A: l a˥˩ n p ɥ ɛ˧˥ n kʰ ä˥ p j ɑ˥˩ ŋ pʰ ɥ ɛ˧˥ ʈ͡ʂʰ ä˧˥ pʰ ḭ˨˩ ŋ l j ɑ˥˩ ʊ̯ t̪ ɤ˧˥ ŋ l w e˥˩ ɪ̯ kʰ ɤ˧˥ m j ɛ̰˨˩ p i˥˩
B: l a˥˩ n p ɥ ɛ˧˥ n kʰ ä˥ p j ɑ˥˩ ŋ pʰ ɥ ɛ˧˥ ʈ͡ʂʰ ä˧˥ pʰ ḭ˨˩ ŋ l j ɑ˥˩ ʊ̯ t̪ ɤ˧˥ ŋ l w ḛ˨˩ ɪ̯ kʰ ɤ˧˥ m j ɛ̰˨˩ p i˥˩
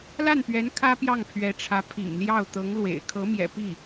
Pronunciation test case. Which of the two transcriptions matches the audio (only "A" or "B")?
B